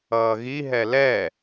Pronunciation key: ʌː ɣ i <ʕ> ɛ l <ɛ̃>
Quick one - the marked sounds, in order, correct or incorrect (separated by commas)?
incorrect, incorrect